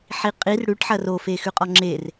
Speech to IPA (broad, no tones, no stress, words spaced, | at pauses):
ħiqʼir ɽʉʈ ħɐro fexʉqʼɔŋ͡ǁer